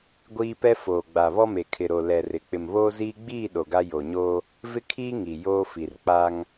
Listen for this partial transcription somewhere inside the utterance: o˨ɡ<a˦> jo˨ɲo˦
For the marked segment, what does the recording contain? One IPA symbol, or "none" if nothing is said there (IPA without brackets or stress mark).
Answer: a˦